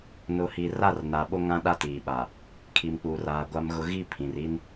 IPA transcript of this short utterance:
nʊ˨hi˨ ra˦˨r na˨ɓo˦ ŋã˦ɗa˦tiː˨ɓa˨ | kʰi˨mk͡pu˨raː˨ ɡʷa˨mɣʊ˨ ɣi˦˨ pʰĩ˨r i˦n

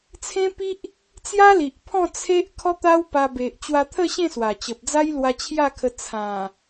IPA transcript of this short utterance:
t͡sʰẽ˦pi˦ʔ | t͡sja˦li˨ʔpʰɔ̃˥˧ t͡sʰe˦ʔ kʰɔ˦t̪a˦w pa˧ be˨ʔt͡ɕwa˧t̪ʰə˥˧ ɕẽ˥˧swa˨˩t͡ɕə˨p̚ d͡za˦jlwa˧t͡ɕʰja˥˧kʰə˧ t͡sʰã˨˩

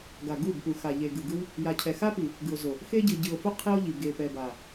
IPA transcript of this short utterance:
ɡa˨ɡu˦˨bpu˨ xa˨ ʎe˨ɡɯ˨ɡɯ˦w | ja˨cʰɛ˨ xa˦pi˨ | ɡɯ˨o̯zo˨ | xe˦ɟɯ˨ ɟɯ˨o̯fo˦ qʰi˦o̯ʎi˨ ɡe˨ pɛ˨ba˨

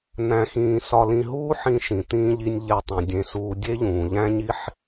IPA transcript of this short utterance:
n̪æ̃˧xĩː˧ sɒ˧lĩ˧ɦuː˥ ħĩ˧ʃĩ˩t̪ĩː˧ʎi˧nʲ ʎe˧tˤĩ˩ dʲẽ˧suː˧ dʲe˥ʎũː˩ʎæ̃˥ɲi˥ħ

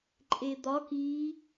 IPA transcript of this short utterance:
ǃʼed̪ɒk i

